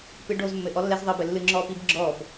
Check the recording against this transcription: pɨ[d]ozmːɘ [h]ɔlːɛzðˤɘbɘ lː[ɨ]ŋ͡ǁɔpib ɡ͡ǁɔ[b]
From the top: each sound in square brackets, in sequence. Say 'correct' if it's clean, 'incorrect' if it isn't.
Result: incorrect, incorrect, correct, correct

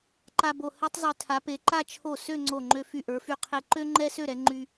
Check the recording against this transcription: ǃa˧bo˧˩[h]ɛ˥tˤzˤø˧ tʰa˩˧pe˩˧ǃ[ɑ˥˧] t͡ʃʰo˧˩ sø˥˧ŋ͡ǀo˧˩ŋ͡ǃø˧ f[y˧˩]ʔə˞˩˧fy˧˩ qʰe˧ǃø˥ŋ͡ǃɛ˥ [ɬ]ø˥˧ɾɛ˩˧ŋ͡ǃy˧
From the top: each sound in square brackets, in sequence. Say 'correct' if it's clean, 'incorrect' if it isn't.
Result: correct, incorrect, correct, incorrect

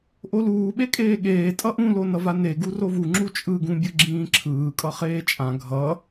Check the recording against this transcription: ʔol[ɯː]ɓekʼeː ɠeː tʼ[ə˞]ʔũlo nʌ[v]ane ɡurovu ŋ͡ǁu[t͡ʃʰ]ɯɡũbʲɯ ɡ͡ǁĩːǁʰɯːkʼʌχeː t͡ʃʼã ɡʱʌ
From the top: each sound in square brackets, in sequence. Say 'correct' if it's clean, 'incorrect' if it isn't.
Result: incorrect, incorrect, correct, incorrect

